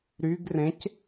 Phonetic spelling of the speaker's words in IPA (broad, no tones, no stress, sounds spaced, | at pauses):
ɾ y ɡ r ẽ c